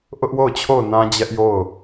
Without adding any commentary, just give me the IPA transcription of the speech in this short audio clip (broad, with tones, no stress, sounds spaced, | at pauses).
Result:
ʔ ʊ˦ ʔ w o˦˨ ʊ̯ t͡ɕʰ o˦˨ ʊ̯ n ã˦ d͡ʑ ɛ˦ ʔ j o˦˨ ʊ̯